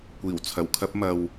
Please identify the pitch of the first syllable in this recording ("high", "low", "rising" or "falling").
low